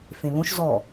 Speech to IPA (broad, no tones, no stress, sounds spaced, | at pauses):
f ẽ β õ ʃ z ɔ